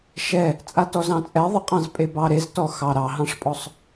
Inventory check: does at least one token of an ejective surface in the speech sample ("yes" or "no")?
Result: yes